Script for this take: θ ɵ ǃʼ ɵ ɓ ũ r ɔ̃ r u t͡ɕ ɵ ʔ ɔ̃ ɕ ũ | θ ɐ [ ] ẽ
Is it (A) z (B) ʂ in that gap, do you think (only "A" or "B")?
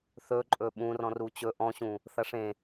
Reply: B